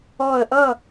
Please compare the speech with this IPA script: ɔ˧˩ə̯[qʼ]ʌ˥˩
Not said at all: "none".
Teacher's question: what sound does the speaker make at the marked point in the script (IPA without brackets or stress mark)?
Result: ʔ